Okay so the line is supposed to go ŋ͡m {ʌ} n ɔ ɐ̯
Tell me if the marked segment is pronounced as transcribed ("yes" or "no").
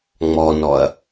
no